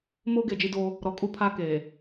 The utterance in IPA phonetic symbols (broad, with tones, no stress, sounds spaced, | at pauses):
m oː˦ ɡ e˨ d͡ʒ i˦ d o˦ | ɾ ɔ˨ kʼ u˦ pʰ a˦ k eː˨